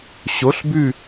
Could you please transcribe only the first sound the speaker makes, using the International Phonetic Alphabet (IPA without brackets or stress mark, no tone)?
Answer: ɕ